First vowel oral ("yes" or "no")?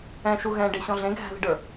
no